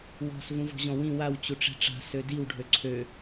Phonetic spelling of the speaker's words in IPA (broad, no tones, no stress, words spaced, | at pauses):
wɔ̤s vũvɔ̤ʑɔ̃wĩ waw t͡ɕuʈ͡ʂɛ̤ʈ͡ʂa̤ sødiw ɖʱøǀʰø